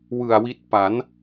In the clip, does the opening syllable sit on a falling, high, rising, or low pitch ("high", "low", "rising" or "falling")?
low